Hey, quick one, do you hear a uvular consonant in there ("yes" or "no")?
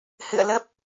no